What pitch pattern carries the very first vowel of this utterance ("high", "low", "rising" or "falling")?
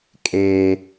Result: high